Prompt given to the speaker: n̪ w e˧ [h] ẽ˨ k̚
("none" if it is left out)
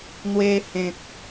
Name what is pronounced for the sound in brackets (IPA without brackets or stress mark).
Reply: h